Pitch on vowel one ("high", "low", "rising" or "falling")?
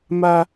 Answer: high